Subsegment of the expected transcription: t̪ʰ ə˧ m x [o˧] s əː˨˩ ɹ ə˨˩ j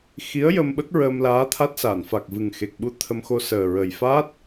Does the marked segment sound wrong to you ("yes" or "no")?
no